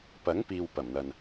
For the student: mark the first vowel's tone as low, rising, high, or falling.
rising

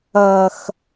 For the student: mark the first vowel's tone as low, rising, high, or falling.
high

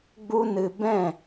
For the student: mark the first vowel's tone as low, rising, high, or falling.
high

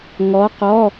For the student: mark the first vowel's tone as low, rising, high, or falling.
rising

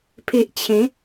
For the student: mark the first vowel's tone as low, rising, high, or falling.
low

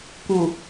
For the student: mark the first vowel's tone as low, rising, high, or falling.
low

